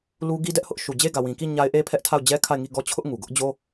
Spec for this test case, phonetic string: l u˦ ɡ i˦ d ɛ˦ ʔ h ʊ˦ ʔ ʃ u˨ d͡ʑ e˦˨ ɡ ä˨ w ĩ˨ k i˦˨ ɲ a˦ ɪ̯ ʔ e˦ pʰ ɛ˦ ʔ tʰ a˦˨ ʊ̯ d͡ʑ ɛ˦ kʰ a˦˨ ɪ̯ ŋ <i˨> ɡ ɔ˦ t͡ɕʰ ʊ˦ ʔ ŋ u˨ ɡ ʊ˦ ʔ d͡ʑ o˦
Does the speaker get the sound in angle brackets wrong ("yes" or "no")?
yes